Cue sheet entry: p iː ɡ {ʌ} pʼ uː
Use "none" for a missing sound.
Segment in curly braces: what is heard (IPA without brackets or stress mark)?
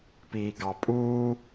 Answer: ɑ